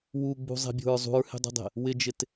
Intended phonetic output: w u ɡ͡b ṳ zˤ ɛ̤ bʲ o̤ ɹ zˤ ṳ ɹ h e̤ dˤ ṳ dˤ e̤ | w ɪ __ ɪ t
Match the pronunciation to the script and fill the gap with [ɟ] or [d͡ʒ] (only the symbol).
d͡ʒ